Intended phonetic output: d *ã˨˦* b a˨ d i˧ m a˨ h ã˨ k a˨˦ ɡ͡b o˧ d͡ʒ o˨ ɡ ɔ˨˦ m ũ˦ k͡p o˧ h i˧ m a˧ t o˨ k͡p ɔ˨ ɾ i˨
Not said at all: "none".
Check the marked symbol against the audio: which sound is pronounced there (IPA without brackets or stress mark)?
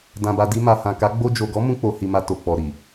ã˨